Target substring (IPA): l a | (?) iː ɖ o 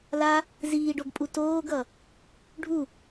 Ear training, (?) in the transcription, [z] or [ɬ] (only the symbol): z